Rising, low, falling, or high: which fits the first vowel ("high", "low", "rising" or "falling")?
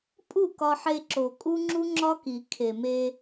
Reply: falling